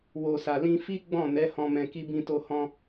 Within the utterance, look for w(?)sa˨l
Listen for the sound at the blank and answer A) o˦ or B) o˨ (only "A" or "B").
B